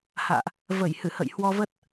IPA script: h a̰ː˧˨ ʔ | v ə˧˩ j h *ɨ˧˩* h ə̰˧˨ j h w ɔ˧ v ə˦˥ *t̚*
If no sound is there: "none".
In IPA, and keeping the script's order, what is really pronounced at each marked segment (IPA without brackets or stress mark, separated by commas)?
ɨ˧˩, t̚